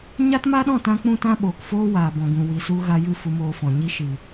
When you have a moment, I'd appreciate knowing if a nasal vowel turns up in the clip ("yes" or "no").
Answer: yes